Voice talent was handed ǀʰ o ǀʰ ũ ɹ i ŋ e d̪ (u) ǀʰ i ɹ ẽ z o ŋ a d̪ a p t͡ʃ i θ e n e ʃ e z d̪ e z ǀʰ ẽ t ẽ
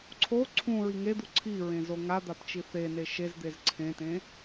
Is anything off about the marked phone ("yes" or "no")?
no